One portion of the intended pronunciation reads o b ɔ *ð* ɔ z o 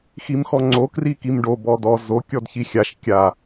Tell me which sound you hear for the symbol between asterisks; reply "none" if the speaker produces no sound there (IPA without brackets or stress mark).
d